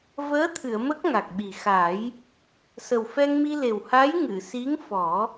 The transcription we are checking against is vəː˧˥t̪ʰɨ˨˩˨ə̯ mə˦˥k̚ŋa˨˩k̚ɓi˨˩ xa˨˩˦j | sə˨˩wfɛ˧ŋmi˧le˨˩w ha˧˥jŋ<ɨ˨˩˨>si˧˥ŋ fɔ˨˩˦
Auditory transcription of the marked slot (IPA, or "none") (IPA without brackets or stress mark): ɨ˨˩˨